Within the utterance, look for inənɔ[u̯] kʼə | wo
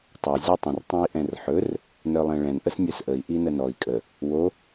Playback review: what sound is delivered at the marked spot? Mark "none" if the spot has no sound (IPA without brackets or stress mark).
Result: i̯